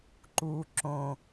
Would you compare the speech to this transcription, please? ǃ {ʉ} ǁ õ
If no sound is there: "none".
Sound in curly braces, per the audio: u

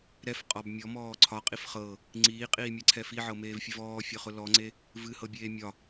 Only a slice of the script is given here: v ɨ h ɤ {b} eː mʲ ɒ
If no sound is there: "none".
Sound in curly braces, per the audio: bʲ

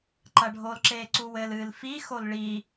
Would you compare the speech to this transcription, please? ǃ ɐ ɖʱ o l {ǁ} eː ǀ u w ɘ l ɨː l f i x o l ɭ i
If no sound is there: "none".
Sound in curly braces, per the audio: ǁ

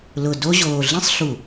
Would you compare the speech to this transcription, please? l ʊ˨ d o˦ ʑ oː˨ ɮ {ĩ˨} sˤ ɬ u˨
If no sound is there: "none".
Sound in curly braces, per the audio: ĩ˦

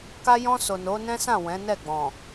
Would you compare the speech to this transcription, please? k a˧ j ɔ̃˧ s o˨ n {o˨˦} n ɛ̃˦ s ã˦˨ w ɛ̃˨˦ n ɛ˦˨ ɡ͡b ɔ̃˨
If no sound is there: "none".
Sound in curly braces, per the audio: o˨˦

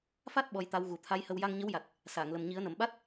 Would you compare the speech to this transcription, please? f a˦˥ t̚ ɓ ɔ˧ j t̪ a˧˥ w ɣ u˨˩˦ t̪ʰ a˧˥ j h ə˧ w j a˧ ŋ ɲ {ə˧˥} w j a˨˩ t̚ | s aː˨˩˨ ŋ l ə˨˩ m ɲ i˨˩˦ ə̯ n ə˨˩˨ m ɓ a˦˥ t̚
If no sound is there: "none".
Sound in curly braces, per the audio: ə˧˥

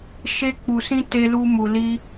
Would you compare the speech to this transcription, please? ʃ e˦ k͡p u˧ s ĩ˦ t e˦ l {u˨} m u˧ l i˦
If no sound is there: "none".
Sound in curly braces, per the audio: u˦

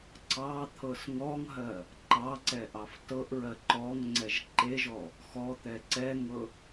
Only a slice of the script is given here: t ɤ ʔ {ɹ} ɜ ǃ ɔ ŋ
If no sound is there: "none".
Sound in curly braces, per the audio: ɹ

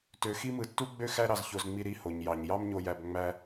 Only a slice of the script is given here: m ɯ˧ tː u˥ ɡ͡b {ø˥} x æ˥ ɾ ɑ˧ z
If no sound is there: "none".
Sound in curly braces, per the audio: ø˥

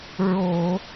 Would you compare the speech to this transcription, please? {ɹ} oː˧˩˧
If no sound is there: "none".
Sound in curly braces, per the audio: ɹ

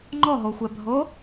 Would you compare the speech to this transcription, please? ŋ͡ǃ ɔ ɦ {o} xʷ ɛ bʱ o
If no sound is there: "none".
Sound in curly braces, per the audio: o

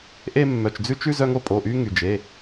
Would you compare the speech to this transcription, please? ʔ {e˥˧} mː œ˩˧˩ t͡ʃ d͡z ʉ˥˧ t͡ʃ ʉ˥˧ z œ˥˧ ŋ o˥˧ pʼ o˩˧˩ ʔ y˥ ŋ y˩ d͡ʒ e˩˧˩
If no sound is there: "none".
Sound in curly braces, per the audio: e˥˧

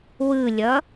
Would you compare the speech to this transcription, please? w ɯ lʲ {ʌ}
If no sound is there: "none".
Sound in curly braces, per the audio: ʌ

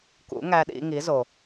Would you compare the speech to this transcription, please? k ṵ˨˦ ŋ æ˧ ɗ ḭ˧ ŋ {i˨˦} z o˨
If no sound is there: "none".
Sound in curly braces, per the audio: i˨˦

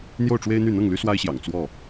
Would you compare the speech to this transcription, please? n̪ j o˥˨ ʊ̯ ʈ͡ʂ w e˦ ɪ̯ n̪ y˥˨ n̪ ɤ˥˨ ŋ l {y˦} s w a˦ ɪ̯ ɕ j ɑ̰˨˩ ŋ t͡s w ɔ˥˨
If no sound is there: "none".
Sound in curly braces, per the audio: y˦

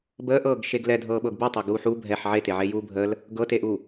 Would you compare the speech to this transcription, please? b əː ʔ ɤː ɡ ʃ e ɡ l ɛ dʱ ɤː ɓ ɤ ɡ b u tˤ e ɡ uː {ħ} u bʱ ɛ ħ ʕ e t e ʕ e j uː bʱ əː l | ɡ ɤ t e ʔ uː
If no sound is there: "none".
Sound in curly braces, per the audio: ħ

